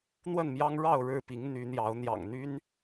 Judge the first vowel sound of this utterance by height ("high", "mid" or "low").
mid